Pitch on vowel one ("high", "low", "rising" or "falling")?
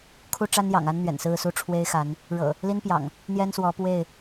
high